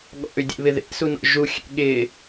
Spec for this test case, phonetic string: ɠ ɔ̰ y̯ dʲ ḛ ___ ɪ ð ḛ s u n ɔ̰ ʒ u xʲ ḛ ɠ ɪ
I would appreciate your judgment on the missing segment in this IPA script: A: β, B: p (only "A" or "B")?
A